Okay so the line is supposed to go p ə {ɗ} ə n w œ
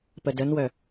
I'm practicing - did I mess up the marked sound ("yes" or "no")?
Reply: yes